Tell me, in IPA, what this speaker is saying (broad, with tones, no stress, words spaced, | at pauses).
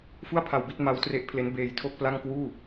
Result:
fu˥˩a̯pʰa˧wbi˥˩t̚ ma˦˥wtre˦˥ʔpʰle˦˥n beː˧jtʰo˥˩k̚pla˥˩ŋ kwuː˥˩